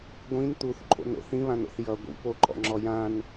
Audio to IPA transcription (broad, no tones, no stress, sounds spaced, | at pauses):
ɡʷ ĩ n t̪ u θ ǃʰ o̰ n o̰ θ ĩ β ã n o̰ θ j ʌ ɡʷ ḭ p o ǃʼ ɔ̰ ŋ͡ǁ ɔ j ã n